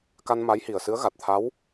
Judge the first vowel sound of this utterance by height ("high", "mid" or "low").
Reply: low